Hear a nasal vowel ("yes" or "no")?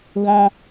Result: yes